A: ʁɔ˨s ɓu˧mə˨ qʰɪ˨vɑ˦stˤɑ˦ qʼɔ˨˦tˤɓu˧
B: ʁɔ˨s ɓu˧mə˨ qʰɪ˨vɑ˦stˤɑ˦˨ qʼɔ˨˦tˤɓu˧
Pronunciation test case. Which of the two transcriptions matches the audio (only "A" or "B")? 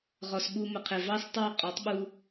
B